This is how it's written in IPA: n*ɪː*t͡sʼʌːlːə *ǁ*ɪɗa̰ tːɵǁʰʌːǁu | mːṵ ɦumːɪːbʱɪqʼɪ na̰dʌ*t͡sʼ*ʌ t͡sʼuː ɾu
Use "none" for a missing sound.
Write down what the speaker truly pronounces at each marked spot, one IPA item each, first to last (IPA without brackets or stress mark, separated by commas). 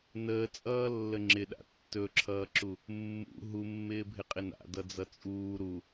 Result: əː, ŋ͡ǁ, d͡z